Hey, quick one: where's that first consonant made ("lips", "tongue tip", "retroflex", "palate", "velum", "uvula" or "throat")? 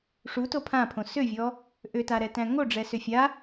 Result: retroflex